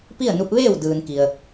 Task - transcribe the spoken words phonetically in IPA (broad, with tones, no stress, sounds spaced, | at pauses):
p i˥˨ ə̯ n u˧ p̚ ʋ eː˥˨ w d ɯː˩ n k i˩ ə̯